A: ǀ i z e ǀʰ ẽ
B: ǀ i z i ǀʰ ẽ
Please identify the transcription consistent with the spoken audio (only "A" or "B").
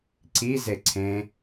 A